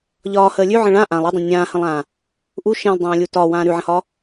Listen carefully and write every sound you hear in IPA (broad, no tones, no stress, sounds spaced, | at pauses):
ʎ ɒː h əː lʲ ʉ ʕ ə̃ ɭ ã ʔ ã lˠ e dˤ ə̃ nʲ ãː h ə̃ lˠ ãː | ʔ u ʃ ẽ lˠ dˤ ãː lʲ u t ɒ w ãː ɾ ʉ ʕ ə̃ h ɒː